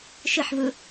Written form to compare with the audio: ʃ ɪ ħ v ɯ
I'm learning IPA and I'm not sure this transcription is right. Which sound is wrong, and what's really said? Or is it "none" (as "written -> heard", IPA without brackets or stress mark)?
none